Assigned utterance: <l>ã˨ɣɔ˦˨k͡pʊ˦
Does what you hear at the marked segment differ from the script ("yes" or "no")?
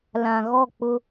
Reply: no